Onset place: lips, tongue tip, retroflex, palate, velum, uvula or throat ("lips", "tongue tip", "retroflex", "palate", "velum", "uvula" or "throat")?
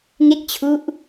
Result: velum